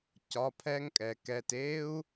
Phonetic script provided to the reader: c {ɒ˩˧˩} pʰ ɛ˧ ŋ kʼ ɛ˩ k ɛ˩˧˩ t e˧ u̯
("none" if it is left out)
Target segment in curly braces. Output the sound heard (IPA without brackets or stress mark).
ɒ˩˧˩